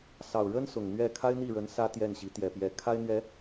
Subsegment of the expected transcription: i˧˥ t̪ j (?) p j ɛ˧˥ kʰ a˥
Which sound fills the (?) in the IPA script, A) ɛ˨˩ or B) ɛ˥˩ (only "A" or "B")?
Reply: A